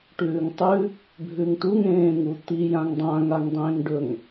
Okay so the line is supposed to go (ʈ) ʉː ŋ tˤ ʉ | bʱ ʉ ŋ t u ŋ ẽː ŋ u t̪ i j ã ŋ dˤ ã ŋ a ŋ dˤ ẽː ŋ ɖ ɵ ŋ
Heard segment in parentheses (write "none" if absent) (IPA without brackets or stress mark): ʈ